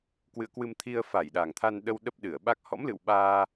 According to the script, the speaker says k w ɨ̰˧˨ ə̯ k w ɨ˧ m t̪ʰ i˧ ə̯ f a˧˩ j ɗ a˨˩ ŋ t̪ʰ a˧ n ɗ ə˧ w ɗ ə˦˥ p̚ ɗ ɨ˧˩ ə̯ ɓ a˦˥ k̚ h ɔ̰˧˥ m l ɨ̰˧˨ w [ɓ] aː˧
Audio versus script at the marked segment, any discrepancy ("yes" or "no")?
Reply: no